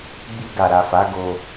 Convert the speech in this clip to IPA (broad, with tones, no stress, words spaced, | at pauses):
ɡ͡bi˧ɡa˨ɾa˨fa˨˦ ɡo˧